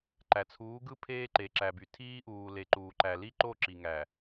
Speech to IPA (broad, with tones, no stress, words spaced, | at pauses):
ǃæ˨ t͡sʰuː˨˦ɡɯ˦ pʰeː˦ǃe˨ǁæ˨by˨ tʰiː˦ʔuː˨ le˨ǃuː˨ǃæ˨ li˦˨ǃo˦˨ ǁi˨ŋæ˨